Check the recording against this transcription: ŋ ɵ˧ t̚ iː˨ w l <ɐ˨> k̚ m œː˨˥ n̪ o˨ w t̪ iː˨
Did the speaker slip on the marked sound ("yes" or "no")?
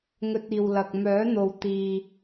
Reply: no